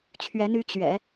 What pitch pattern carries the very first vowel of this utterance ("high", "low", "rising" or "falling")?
rising